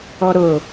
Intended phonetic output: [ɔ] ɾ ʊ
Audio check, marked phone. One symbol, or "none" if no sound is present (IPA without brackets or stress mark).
ɔ